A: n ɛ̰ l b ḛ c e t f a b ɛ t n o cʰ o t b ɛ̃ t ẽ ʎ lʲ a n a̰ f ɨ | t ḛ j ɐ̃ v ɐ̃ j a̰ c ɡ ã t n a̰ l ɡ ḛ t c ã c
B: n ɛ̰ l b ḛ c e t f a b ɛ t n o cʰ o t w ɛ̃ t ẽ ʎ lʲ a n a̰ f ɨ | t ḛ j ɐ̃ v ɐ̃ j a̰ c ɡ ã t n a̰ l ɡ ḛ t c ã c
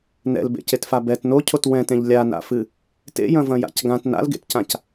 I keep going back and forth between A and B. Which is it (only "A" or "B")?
B